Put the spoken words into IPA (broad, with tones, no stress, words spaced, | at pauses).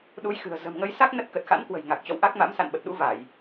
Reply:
ɗu˨˦jxɨ̤˨˩ə̯ zə̤˨˩mŋə˨˦jsa˦˥k̚ nə˦˥t̚kə˨˩t̚ xa̰˧˥nkwə̤˨˩j ŋa˨˩k̚t͡ɕɔ̰˧˨wʔa˦˥k̚ma̰˧˥m sa̰˧˨nɓə˨˩t̚ɗṵ˧˥ va˧˩˨j